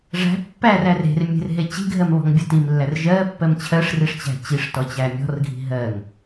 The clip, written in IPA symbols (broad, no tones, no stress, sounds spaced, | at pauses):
ʐ æ̤ pː æ r æ r e̤ r mʲ e̤ r ɦ e t͡ɕ i̤ ɡʱ ɜ m β ɔ̤ ŋ bʲ ɜ t i m lː æ r ʒ ɜ pː ɜ m t͡ɕʰ ɜ ʂ r i ʂ t͡ɕ æ̤ t͡ɕ i ʂ t ɔ t͡ɕ æ mʲ ɔ̤ r ɡʱ i̤ ɦ ɜ ŋ